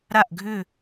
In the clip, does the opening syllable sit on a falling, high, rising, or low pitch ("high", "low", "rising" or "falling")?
falling